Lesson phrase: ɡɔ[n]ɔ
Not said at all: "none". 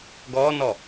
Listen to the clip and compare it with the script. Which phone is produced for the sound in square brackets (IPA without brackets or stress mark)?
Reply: n